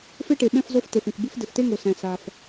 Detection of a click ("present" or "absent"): absent